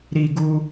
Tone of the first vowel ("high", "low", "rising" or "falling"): high